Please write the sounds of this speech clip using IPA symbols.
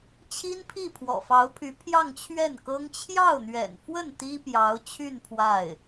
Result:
t͡ɕʰi˥npʰi˥˩ pʰwɔ̰˨˩fɑ˧˥ʊ̯pʰy˧˥ pʰjɑ˥˧ŋt͡ɕʰɥɛ˥˩nkɤ˥ŋ t͡ɕʰjɑ˥˩ʊ̯n̪ɥɛ̰˨˩nfwə˥˩n t̪i˥pjɑ˧˥ʊ̯t͡ɕʰy˥˧n pʰwa˥˩ɪ̯

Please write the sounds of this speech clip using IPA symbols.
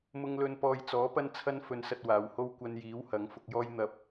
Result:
mʊ˧ŋlɵ˧n pɔː˨jt͡sɔː˨˥ pɐ˥nt͡sʰɐ˥nfɵ˧nsɐ˧t̚ waː˨˧who˥w kʷɐ˧njiː˨˥w hɐ˨˥ŋfʊ˧k̚jɔː˥j n̪ɐ˥p̚

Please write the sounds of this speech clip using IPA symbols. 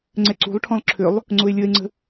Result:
ŋ͡ǀɛǀṳlˠʈʰɔ̃lˠ ǁʰʏlˠ | ŋ͡ǀʊe̯lʲəe̯ŋ͡ǀə̤

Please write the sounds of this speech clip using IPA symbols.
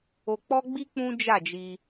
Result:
o˧k͡pɔ˦ɡ͡bi˦ k͡pũ˦ d͡ʒa˦˨d͡ʒi˧

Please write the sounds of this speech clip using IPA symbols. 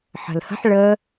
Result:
ħə̤lhə̤ħ ɭə

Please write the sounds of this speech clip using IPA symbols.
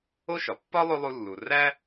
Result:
o˥ ʃɒ˩pːɒ˥ lˠo˥lˠu˦lːu˨ ræ˥

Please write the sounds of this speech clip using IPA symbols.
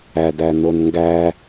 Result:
ædæ nonŋɡæ

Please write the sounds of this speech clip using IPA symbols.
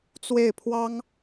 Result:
t͡swe˥˩ɪ̯pʰwɑ˥ŋ

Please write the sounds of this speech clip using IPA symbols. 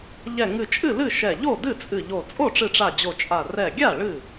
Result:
ʎɛ˧˩ ŋɨ˧˩t͡ʃʼɨ˥˩lɨ˥˩ ʃɛ˧˩ ʎo˥˩dɨ˥˩t͡sʼɨ˧˩ʎo˧˩ t͡sʼo˥˩ʈ͡ʂɨ˧˩ʈ͡ʂa˧˩ d͡ʑo˧˩t͡ʃʼa˧˩ rɛ˧˩ɡʲa˥˩ ɭɨ˥˩

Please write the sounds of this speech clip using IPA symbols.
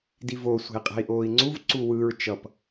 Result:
divo sʷe̤i̯qʼe̤i̯ʔoːi̯ŋ͡ǀuv ǀuwɯɹ t͡ʃʌp

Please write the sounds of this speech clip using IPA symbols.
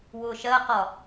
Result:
wʊːʃɜqɒ

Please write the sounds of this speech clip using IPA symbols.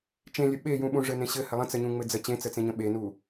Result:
t͡ʃẽlʲə ɓejũɓũ ʐɘnẽɕɘ hɘlˠə̃ t͡səɲũŋ͡mɘd͡zə t͡ɕẽt͡sət͡sẽɲə̃ ɓenu

